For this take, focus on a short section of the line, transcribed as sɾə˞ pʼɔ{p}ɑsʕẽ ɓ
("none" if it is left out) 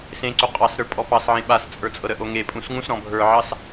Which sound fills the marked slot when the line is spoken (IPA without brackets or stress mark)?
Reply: p